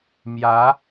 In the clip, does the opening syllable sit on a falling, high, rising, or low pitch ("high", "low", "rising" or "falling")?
rising